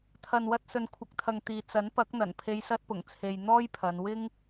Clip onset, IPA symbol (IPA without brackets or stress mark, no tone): t̪ʰ